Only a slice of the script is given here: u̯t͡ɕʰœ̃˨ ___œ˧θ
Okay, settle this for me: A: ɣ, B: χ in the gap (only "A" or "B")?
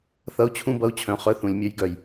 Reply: B